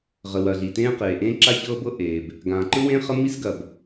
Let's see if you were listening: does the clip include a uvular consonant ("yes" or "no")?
yes